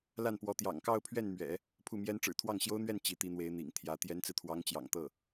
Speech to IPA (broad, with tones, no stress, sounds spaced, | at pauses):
l a˥˩ n p w ɔ˧˥ t̪ j ɑ̰˨˩ ŋ k ɑ˥˧ ʊ̯ pʰ ɥ ɛ˥˩ n m ɥ ɛ̰˨˩˦ | pʰ u˥˩ m j ɛ˥ n ʈ͡ʂ ɻ̩˨˩ t̪ʰ w ɑ˥˩ ŋ ɕ j o˥ ʊ̯ n̪ ɥ ɛ˥˩ n t͡ɕ i˧˥ t̪ i˧˥ n̪ w e˧˥ ɪ̯ n̪ ḭ˨˩ ŋ t̪ʰ j ä˧˥ t̪ j ɛ˧˥ n t͡s ɹ̩˧ t̪ʰ w ɑ˧˥ ŋ t͡ɕ j ɑ̰˨˩ ŋ t̪ ɤ˥˩